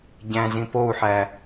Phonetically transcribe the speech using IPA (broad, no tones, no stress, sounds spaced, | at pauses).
ɟ æ̃ z ĩ p o u̯ ħ æ